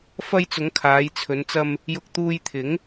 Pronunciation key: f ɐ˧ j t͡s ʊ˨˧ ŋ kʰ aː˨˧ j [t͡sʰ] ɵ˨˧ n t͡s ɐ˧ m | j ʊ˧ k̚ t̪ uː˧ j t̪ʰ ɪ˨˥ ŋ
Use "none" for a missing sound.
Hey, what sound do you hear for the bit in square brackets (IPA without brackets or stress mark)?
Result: t͡sʰ